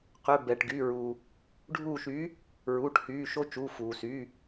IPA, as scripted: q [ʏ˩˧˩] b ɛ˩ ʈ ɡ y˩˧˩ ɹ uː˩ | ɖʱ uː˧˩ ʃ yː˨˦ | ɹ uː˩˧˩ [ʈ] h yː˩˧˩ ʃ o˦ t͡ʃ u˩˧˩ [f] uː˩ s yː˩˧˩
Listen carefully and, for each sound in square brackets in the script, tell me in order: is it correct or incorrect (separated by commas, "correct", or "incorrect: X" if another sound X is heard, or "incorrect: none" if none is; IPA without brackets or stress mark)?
correct, correct, correct